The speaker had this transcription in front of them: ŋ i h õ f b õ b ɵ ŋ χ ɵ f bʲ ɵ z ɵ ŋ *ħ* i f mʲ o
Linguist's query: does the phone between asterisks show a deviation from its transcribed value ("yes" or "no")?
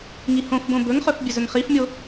yes